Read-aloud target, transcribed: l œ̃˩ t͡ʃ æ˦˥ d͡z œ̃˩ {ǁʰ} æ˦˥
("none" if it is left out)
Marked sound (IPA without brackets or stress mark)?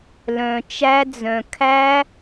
kʰ